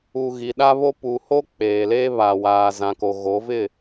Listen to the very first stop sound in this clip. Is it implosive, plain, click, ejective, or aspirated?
implosive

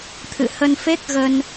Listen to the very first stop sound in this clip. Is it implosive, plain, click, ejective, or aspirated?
aspirated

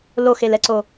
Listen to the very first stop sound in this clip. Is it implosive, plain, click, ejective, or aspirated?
click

